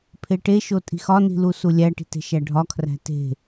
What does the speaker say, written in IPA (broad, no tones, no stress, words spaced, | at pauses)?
pʰeʈeʃo tʼi̤xɒni̤lu sulʲæʈi̤t e̤ʃæɖʱɒkʰræ̤ te̤